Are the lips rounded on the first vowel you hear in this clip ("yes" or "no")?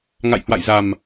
no